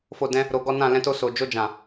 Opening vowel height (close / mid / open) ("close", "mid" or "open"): mid